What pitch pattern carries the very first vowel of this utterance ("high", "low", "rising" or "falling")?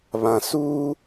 low